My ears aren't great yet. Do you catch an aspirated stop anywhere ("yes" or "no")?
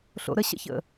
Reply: no